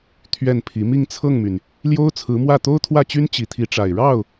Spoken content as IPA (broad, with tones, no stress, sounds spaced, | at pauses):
t̪ʰ ɥ ɛ˥˩ n pʰ i˧˥ m i˥˧ ŋ t͡sʰ ɤ˥˩ ŋ m y˩ n | l j o˥ ʊ̯ t͡sʰ ɹ̩˧˥ m w ä˥˩ t̪ o˥ ʊ̯ t̪ʰ w ä˥˩ t͡ɕ y˥ n t͡ɕ i˧˥ t̪ʰ i˧˥ ʈ͡ʂ a˨˩ ɪ̯ ɻ ɑ˥˩ ʊ̯